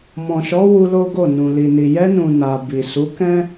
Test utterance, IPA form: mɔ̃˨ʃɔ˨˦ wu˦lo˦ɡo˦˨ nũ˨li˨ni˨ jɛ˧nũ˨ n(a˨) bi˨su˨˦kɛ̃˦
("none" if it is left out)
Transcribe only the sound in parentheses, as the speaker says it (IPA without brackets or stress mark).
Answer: a˨